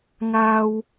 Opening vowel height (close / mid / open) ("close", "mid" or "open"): open